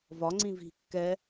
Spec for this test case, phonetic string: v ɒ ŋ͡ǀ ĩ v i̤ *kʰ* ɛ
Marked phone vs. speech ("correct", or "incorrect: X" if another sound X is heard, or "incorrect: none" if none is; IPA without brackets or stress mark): incorrect: kː